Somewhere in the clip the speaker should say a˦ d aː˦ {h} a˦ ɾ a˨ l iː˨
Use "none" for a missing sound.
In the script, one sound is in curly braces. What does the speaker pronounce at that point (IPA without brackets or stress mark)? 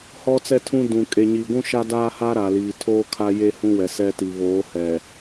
h